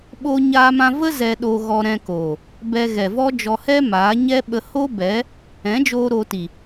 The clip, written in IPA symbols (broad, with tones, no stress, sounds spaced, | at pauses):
ɓ oː˦ ɲ aː˦ m ã˦ v ə˦ z ɛ˧ ɗ o˧ ɣ ɔ˧ ɾ ɛ̃˧ k oː˨ | b ɛ˧ ɣ ɛ˨ v ɔ˦ d͡ʒ ɔ˧ h ɛ˦ m aː˨˦ ɲ ɛ˦ ɓ ə˧ h o˦ b ɛ˨˦ | ɛ̃˨˦ d͡ʒ oː˧ ɾ oː˧ t i˨